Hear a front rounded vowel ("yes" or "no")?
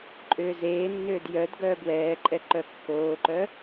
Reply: yes